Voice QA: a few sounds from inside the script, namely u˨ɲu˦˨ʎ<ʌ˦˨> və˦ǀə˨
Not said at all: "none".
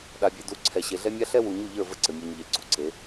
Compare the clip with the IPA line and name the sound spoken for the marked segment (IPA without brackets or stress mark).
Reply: ə˞˦˨